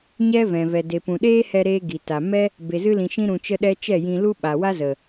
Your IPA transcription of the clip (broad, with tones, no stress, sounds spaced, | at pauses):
ɲ ɛ˦ v ɛ̃˨ v ɛ˨ d e˨ p ũ˨ ɗ eː˦ h ɛ˧ ɾ eː˧ ɡ i˨ t a˨ m ɛ˦ | b e˨ z ɨ˧ l ĩ˨ ʃ ĩ˧ ɾ ũ˨ t͡ʃ ə˧ ɗ ɛ˧ t͡ʃ ɛ˦˨ j ĩ˧ l u˦ ɓ a˨ w a˦ z ə˨